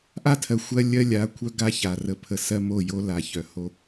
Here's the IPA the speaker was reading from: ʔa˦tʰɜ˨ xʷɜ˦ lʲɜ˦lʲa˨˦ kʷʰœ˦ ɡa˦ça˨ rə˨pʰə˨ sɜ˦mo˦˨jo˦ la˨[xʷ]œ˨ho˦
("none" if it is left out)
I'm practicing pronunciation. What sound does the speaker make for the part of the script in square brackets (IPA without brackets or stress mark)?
ç